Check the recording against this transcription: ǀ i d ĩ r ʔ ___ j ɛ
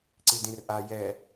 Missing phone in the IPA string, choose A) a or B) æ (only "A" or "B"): A